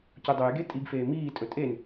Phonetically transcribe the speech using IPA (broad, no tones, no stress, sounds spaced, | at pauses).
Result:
c u dˤ œ j ɡ e tʼ i ɡ f eː m iː tʼ ɵ tʼ e n